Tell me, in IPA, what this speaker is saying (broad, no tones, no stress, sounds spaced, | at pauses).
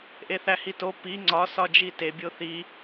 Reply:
ʔ e θ æ h i t o p i ŋ͡ǀ ɒ s ɒ d͡ʒ i t e bʲ o θ i